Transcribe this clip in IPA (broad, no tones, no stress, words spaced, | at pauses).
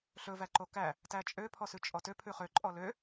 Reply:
ɬɵvæǃo kæ | tæt͡ʃʼøpʰɔsʉ t͡ʃʼɔtø pʰʉχø ǃʼɔlø